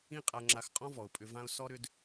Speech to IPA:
ĩ˦qʼa˧ŋ͡ǁa˧xqʼɔ̃˦ vɔ˨ʊ̯pʼʏ˧vã˦ʊ̯ sɔ˦ɾʏ˦d

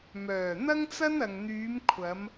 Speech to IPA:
mœː˨˩ n̪ɐ˥ŋt͡sɐ˥n ɐ˨ŋn̪yː˨˧m kʷʰɐ˨˧m

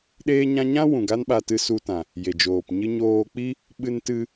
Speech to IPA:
ɗeː˦ɲã˦ ɲã˦ wũ˨ɡa˦n ɓa˧tɨ˧su˧tã˨ | je˨d͡ʒoː˨pɲɨ˦ ɲoː˧k͡pi˦ | ɓɨ˧ntɨ˧

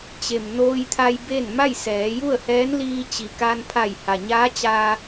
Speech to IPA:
t͡ɕe˩m noː˧jt̪ʰa˧j be˥˨n ma˥˨jsɛː˩˧ju˥˨ə̯hɛː˧˥n liː˧t͡ɕi˩ kaː˧npʰa˧˩jha˩ɲaː˧˥ t͡ɕaː˧

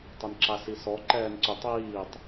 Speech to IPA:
tˤʏnǁasisɔ ǃɛːnǀʏ tˤiːtˤ

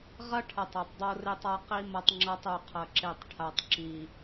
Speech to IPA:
ʁɐ˦ʈʰɐ˨tˤ a˨tˤdˤo˦re˦tˤa˦ qi˦ mɐ˦tˤŋ͡ǁa˦tˤ u˨qʰɐ˨ǁe˨tˤ ʈʰa˨tˤǁi˨

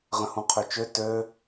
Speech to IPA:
ʁə̃hũqʰøt͡ʃø tø

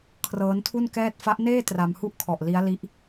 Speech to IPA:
kʰrɤː˦˥ntʰu˥˩nkɛː˥˩t̚ fa˦˥ʔneː˥˩ tra˧mhu˥˩ʔkʰɔ˨˩ʔ li˦˥a̯li˦˥ʔ

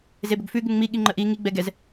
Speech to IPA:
zebɵɡfʉ ɡʉŋŋ͡mi ɠiŋ͡ǃəʔi ŋi ɡ͡bɛɡɛz

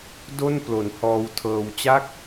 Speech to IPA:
do˥˩nplo˩˦nhɔː˧wtʰɤː˧w t͡ɕa˦˥k̚

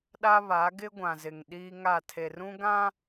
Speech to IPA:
ɗa˦βa˨˦ ɡɪ˦ɡʷã˨zɪ˨ŋ ɗiː˦ŋa˦˨ tʰe˨rũ˦ɡã˦

